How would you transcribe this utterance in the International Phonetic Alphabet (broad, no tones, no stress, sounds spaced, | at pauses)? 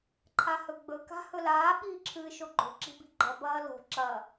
ǃʰ a h ɵ ɡ͡b ɵ k a̤ h ɵ l aː ɓ iː ǁʰ ɨː ʃ o ɡ͡ǃ o̤ ǁ i̤ b i̤ ɡ͡ǃ ɐ b ɐː l o̤ ǁ ɐ